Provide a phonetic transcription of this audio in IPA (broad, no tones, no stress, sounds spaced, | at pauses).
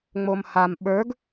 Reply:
ŋ͡m o m h a m ɓ ə˞ ɡ